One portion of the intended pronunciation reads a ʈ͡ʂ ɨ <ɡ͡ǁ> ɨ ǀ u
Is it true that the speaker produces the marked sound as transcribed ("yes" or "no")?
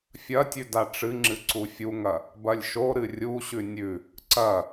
no